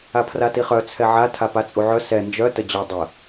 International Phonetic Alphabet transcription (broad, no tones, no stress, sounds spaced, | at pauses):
a pʰ r a t i χ œ t͡sʰ ɛ ʕ a tʰ a p a t͡sʼ u ʕ œ s ɛ n d͡ʒ œ t ə d͡ʑ œ dˤ ə